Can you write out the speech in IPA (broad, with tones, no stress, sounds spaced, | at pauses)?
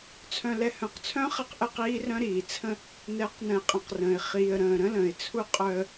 t͡sʰ œ̃˨ l ɛ˨ h œ̃˨ q t͡sʰ œ̃˦ χ ɛ˦ q ʔ ə˦˨ q iː˦ r œ̃˦ ɾ iː˨ t͡sʰ ə̃˦ | n ɛ˨˦ q n ə̃˨ ɪ̯ qʼ ɛ̃˨ q r ə̃ː˨ ɪ̯ χ iː˨ ə̯ ɾ ə̃ː˨ ɾ ə̃˦ l ə̃ː˨ ɪ̯ t͡sʰ u˦ qʼ œ˦ ə̯